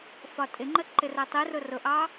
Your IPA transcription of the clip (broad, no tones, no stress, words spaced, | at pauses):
fɒtʼɪŋ͡ǃə ǃɪrɛtˤirʊ rʊʔɑ